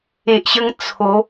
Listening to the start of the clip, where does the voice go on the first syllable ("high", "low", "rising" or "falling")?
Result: low